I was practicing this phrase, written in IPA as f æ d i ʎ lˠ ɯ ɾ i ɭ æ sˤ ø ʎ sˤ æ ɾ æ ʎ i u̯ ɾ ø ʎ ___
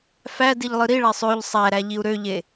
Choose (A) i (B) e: B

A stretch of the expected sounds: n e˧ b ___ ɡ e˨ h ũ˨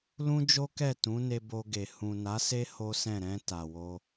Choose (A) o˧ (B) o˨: A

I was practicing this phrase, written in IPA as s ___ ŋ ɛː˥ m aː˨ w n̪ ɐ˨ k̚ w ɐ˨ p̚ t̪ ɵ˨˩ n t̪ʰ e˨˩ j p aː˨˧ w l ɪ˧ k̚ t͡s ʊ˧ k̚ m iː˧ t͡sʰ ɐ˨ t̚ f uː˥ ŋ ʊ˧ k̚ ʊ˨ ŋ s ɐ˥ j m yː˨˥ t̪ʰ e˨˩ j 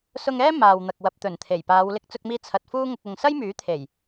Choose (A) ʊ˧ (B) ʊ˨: A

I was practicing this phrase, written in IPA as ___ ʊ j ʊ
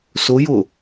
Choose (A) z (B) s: B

